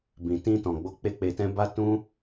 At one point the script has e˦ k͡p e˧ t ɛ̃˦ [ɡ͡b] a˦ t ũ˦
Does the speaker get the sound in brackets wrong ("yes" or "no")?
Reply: yes